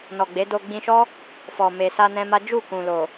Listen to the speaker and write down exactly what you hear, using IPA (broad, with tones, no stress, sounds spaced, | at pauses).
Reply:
n ɔ˨ ɡ͡b e˨˦ d o˧ ɡ͡b ĩ˧ ʃ ɔ˦ | f ɔ˨ m e˨ s a˧ n ɛ̃˦ m a˦ d͡ʒ u˦˨ k ũ˨ l o˨